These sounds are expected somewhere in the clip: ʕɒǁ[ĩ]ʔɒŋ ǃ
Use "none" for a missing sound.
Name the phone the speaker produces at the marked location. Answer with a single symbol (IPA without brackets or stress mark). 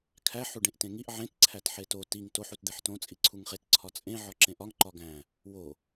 ẽ